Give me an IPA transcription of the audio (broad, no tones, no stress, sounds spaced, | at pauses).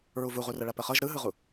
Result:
ɹ u v u ʁ u r ə ɭ ɐ p ə χ ɤ ʒ ɾ ɯ ɦ ɯ ʁ u